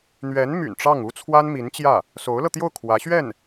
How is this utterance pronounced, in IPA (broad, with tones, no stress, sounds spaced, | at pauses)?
n̪ ɥ ɛ˧˥ n m y̰˨˩ n ʈ͡ʂ ɑ˥˩ ŋ u˥ t͡sʰ w a˥ n m i˧˥ n t͡ɕ j ä˥˩ | s o˧˥ ʊ̯ l ɤ˧ t̪ j o˥˩ ʊ̯ kʰ w ä˧˥ ɕ ɥ ɛ˥˩ n